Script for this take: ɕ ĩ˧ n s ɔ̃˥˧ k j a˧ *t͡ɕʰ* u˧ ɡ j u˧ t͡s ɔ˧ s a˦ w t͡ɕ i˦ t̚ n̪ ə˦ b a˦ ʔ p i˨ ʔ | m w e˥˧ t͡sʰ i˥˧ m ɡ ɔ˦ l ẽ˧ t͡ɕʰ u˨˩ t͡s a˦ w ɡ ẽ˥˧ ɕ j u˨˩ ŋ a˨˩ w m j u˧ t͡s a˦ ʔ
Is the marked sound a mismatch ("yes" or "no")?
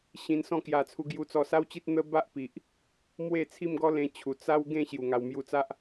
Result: yes